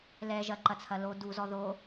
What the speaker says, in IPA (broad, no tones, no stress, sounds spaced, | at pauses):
l ɛ ʒ ɐ ǃ ɐ t͡sʰ ɐ l o d u z ɔ ð o